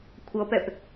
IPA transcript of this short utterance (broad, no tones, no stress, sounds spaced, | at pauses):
kʷʰ ʌ p ɛ p